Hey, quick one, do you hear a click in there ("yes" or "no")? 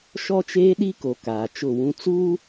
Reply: no